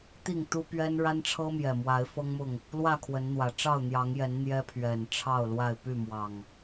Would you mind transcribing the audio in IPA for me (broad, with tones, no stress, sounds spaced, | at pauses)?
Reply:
t̪ i˥˨ ŋ t̪ u˦ p ɥ ɛ˦ n ɻ a˦ n ʈ͡ʂʰ ɤ˦ m j ɛ˨˩ m w a˨˦ ɪ̯ f ɤ˦ ŋ m ʊ˥˨ ŋ | l w ä˥˨ kʰ w ə˨˦ n n̪ w ä˨˩ ʈ͡ʂ ɑ˥˨ ʊ̯ n̪ j ɑ˨˦ ŋ j ɛ˨˦ n n̪ j ɛ˦ pʰ ɥ ɛ˨˩ n ʈ͡ʂʰ ɑ˥˨ ʊ̯ l w a˥˨ ɪ̯ p y˥˨ m w ɑ˨˩ ŋ